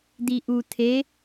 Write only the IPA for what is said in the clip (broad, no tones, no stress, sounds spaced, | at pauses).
d̪ i ʔ u t̪ʰ e